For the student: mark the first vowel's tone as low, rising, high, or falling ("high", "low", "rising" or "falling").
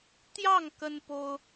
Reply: falling